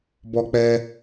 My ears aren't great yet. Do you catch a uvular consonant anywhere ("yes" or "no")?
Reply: no